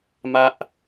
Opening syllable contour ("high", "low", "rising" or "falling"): high